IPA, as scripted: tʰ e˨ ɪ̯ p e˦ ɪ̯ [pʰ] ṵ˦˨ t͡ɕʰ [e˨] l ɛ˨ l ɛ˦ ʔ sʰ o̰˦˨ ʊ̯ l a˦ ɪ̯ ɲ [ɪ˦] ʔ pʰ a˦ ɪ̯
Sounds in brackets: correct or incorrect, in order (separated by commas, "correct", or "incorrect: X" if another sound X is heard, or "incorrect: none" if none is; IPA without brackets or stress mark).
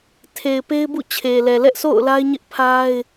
incorrect: b, correct, correct